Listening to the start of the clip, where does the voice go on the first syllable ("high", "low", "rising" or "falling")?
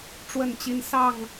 falling